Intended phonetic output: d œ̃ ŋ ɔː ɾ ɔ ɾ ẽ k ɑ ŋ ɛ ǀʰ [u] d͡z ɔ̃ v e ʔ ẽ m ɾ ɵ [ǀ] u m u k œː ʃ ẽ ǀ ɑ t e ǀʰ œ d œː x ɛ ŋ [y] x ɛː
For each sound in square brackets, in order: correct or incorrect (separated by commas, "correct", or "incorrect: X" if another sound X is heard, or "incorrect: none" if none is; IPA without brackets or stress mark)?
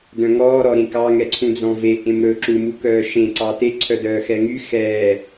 incorrect: ũ, incorrect: ǁ, correct